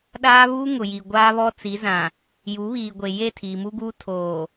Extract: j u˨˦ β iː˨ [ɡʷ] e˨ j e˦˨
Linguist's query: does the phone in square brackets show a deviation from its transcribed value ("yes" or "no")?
no